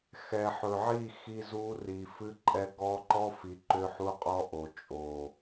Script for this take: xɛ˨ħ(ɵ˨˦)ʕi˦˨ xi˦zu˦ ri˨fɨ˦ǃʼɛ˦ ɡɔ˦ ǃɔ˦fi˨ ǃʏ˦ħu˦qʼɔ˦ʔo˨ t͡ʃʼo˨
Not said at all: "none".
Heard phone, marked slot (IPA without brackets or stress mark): ɵ˨